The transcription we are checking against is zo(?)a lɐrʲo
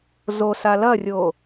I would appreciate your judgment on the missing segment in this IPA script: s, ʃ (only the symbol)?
s